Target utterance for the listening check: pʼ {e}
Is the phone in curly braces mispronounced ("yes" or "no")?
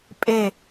no